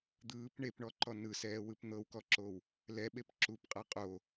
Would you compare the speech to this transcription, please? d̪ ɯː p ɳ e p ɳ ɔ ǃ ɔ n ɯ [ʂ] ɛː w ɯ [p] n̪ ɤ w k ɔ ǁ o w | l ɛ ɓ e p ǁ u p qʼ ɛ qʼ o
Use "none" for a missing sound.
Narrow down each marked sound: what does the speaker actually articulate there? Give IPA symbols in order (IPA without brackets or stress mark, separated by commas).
s, p